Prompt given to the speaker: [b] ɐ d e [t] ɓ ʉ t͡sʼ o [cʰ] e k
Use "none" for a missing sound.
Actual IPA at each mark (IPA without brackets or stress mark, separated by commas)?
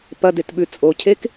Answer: p, t, cʰ